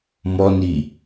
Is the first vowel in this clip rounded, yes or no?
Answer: yes